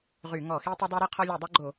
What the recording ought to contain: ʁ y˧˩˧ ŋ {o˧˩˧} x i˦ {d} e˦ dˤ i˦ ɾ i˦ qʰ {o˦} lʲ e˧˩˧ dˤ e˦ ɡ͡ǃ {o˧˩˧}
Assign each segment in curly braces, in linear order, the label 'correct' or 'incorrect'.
incorrect, incorrect, incorrect, correct

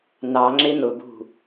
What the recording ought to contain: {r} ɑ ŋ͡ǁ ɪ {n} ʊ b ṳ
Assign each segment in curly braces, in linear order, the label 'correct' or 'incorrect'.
incorrect, correct

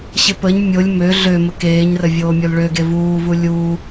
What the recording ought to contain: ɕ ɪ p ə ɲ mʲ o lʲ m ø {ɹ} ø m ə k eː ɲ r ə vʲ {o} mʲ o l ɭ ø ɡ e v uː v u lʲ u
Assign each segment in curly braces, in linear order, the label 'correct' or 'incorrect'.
incorrect, incorrect

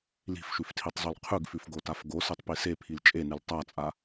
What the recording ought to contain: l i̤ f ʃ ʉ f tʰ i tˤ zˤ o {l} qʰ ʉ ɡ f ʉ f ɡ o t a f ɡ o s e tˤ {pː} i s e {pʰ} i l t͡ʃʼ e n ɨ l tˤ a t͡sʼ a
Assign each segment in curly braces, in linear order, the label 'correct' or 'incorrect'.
correct, incorrect, correct

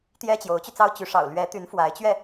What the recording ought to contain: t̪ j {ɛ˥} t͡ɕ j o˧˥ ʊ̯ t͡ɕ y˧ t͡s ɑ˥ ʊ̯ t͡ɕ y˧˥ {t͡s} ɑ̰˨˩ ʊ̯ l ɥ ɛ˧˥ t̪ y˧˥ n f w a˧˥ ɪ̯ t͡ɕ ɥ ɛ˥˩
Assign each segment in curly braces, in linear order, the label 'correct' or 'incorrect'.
correct, incorrect

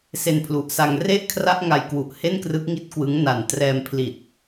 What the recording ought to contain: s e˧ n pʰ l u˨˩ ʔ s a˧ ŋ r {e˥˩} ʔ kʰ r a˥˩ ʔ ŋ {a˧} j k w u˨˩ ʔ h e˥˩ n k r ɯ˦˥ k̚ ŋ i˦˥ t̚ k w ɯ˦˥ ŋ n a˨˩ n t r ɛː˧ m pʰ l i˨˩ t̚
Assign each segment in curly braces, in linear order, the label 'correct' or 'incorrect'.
correct, correct

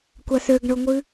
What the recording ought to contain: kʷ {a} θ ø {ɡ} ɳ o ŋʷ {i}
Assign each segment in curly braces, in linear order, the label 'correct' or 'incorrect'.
correct, correct, incorrect

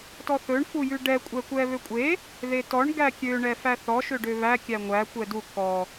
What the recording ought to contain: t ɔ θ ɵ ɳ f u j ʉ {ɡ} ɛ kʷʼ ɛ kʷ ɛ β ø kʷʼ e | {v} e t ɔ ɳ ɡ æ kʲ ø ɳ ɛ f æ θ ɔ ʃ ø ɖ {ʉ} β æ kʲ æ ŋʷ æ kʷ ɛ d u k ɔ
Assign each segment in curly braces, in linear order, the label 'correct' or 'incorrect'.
incorrect, incorrect, incorrect

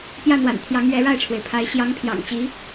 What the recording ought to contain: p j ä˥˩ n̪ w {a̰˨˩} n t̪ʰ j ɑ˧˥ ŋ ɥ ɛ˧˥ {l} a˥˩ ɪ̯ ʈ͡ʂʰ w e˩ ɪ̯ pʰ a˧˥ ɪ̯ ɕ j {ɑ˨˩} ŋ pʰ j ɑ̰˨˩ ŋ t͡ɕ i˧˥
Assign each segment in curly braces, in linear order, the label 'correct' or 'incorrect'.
correct, incorrect, incorrect

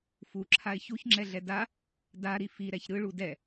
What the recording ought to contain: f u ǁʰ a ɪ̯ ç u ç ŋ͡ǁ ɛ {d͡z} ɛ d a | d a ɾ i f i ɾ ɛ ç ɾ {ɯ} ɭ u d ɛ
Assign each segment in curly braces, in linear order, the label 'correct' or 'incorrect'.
incorrect, correct

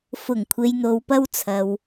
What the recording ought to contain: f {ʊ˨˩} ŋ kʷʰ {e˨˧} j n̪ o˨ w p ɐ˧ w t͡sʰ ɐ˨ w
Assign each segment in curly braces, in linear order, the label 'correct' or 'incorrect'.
correct, incorrect

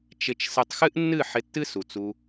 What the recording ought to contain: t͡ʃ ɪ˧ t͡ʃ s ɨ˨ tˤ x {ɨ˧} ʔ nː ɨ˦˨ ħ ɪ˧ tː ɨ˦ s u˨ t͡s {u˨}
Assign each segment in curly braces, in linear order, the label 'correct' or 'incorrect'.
incorrect, incorrect

